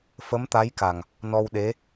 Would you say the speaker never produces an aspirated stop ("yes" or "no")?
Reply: yes